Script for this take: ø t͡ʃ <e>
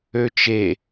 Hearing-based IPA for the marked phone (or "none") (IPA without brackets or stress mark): e